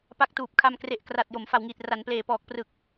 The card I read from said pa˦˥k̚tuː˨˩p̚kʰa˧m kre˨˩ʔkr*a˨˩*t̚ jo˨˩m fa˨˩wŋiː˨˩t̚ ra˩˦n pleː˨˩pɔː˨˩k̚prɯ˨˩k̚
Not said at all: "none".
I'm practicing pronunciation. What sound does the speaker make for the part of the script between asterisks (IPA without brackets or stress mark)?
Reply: a˨˩